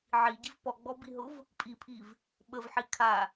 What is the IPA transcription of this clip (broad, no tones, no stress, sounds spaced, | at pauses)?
ʕ i ɟ i v p ɔ ɡ͡b ɔ b i ɦ ʊ v | pʼ i pʰ i v | ɓ ə v ħ i kʰ a